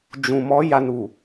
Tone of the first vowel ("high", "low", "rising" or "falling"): low